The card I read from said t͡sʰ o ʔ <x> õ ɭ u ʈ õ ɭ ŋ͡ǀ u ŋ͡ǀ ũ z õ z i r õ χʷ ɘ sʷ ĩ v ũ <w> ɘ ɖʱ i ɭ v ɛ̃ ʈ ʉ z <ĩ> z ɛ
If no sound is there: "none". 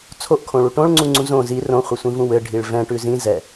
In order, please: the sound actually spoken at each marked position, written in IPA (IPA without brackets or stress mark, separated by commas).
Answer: kʰ, w, ĩ